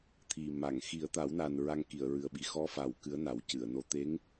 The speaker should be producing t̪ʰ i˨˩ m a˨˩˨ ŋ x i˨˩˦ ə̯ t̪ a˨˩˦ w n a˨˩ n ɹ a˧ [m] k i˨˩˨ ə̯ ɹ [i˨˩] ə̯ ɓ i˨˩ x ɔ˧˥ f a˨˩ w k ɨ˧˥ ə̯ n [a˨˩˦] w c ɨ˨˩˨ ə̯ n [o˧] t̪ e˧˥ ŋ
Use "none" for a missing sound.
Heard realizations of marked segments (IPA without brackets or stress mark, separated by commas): ŋ, ɨ˨˩, a˨˩˦, o˧